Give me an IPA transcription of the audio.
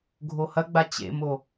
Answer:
ɡʱohɐɡ͡ba t͡ɕḛmo

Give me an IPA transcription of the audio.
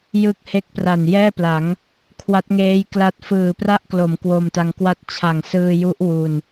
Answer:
jɯ˦˥k̚he˦˥k̚pra˨˩n jɛː˥˩pla˩˦ŋ | kʰwa˦˥t̚ŋeː˦˥j kla˦˥t̚ fɯː˨˩pra˥˩ʔklo˩˦m kwo˧mta˧ŋkwa˥˩t̚ t͡ɕʰa˨˩ŋsɯː˧ju˦˥ʔ wu˧n

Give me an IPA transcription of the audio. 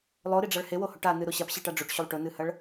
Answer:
lˠoɾiɖ͡ʐaɭ hewohoʈ anɨɾo ɕapɕiʈa ɖ͡ʐoʈɕulˠ ʈɵnɨhɐɭ

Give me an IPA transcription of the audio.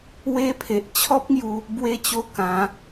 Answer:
we˧pʰe˨ʔ t͡ɕʰɔ˦p̚ŋju˧ | bwe˧t͡ɕo˧ kã˨˦

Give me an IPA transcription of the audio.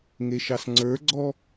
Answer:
ŋeʃɑsŋ͡ǀə˞ɡ͡ǀɔ

